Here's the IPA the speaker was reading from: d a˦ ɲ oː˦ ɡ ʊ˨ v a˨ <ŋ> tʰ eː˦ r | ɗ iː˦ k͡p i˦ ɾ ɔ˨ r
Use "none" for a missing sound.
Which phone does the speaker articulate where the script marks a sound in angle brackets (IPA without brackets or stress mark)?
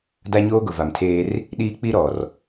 m